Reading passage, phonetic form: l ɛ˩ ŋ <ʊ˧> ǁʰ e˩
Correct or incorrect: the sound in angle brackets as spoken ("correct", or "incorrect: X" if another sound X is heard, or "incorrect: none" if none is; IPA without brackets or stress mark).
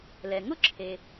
incorrect: ʊ˥